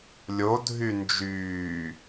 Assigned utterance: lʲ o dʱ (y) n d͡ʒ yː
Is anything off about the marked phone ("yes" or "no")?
no